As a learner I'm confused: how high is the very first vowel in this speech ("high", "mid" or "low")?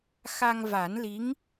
low